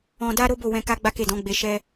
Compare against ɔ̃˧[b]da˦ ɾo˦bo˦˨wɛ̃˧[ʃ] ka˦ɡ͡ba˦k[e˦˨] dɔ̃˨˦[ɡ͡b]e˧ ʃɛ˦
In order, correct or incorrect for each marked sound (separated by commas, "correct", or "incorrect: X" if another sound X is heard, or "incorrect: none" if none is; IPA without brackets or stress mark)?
incorrect: none, incorrect: none, correct, correct